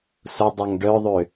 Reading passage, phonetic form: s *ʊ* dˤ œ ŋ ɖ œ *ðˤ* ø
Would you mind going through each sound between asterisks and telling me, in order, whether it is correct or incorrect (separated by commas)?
correct, correct